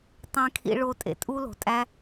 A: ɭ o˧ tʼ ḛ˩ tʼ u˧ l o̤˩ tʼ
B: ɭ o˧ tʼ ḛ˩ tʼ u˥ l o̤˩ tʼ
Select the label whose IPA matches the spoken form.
B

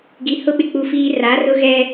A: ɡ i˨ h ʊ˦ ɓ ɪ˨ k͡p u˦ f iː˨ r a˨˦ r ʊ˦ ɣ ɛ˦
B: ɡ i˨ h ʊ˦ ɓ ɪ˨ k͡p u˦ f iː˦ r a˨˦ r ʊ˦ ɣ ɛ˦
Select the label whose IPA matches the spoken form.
B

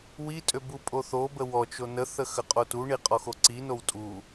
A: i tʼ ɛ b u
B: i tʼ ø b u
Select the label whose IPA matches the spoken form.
B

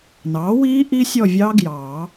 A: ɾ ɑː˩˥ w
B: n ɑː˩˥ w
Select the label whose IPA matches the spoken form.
B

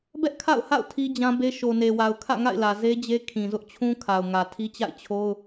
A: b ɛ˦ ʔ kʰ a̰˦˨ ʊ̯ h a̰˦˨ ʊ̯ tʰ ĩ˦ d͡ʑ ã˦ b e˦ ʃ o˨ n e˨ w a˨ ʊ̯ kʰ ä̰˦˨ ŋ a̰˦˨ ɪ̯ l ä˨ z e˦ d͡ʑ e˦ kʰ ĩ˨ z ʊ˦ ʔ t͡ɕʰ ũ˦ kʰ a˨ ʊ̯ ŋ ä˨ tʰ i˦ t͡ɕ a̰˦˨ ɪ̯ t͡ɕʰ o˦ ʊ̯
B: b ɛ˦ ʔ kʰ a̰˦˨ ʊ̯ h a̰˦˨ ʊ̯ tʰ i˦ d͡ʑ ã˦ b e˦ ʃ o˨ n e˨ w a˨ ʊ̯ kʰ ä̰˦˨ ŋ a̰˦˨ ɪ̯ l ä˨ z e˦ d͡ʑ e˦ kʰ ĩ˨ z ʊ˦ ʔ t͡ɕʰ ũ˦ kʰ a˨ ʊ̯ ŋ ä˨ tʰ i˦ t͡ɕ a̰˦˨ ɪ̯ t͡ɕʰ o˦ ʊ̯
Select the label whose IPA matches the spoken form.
B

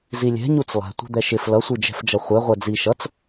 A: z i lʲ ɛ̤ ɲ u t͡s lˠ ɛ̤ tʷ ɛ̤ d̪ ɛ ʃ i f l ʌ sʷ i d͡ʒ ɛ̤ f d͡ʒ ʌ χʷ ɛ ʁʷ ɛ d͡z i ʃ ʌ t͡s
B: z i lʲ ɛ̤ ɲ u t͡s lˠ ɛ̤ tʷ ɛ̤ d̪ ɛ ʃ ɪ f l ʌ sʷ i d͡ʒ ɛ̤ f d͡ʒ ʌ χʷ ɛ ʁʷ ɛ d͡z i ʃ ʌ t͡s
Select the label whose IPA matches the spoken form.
B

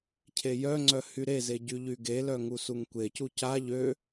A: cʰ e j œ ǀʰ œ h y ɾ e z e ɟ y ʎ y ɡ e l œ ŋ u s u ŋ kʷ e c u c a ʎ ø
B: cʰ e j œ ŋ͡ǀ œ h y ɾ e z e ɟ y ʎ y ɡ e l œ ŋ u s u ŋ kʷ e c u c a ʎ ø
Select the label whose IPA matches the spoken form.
B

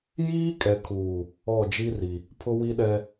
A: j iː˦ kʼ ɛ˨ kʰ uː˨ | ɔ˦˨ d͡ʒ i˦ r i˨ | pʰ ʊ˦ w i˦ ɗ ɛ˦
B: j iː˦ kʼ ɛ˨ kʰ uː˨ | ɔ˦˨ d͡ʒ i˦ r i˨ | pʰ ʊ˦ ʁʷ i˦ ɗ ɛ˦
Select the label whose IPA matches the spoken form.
A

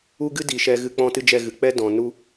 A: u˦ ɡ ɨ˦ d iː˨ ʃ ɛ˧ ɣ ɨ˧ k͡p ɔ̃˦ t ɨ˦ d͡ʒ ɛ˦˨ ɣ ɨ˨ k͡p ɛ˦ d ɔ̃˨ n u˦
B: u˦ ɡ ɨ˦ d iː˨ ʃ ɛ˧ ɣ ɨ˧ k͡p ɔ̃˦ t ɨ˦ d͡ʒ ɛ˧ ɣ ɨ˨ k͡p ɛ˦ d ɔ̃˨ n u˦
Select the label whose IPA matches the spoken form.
A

